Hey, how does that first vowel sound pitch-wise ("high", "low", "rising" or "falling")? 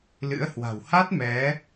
rising